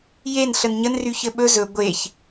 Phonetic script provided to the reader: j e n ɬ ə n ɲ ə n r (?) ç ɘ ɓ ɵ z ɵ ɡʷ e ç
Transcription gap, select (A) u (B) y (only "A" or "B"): B